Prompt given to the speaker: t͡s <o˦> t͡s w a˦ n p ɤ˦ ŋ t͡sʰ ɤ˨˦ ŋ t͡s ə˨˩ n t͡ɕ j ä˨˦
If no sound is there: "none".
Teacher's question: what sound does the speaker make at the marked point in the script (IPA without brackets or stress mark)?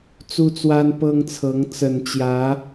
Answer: u˦